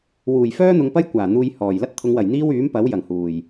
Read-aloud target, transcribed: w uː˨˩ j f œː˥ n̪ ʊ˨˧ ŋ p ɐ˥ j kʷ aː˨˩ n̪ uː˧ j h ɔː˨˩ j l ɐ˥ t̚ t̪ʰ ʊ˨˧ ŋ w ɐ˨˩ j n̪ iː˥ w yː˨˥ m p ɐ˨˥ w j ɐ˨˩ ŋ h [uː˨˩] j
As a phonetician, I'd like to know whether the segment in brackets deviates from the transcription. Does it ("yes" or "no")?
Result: no